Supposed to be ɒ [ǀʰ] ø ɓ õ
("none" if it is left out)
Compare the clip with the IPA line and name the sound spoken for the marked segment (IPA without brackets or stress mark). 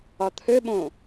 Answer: t̪ʰ